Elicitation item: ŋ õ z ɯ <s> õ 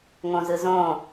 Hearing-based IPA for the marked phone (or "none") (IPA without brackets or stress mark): z